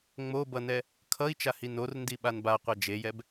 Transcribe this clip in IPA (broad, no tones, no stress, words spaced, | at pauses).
ŋ͡mobʌnɛ | kʰʌi̯t͡ʃahi norndi ɓanbaqʷa d͡ʒejɛb